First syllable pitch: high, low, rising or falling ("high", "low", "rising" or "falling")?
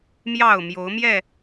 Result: falling